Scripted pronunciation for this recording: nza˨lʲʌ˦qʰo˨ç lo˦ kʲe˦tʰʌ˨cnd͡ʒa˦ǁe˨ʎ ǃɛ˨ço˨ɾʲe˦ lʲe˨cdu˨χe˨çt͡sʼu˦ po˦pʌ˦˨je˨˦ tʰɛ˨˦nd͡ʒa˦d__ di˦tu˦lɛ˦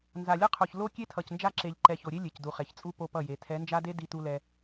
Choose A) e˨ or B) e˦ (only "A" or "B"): B